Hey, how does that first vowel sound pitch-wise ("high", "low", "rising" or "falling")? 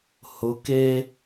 rising